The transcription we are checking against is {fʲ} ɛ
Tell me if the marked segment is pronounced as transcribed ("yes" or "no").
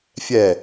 yes